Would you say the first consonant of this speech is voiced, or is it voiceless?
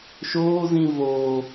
voiceless